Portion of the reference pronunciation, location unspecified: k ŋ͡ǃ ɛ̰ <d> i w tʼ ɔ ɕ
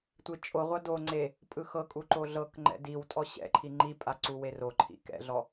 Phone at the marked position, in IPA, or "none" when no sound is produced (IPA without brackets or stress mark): d